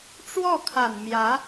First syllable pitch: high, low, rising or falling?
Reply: falling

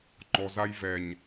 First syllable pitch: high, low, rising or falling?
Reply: low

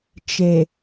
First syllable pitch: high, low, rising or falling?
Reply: low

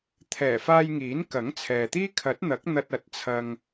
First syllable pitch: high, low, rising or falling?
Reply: low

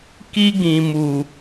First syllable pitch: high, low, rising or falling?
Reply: high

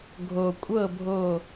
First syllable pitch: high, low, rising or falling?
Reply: low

